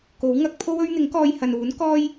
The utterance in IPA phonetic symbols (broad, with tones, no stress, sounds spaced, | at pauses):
k o˨˥ w ŋ ɐ˧ k̚ pʰ o˥ w ɵ˥ ɥ n̪ ɪ˨˥ ŋ k ɔː˧ j h ɐ˨ n uː˨˥ n k ɔː˥ j